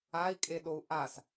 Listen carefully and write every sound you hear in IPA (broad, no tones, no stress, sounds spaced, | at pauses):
a i̯ kʼ e ɗ o u̯ ʔ a s